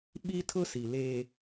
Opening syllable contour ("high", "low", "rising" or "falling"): high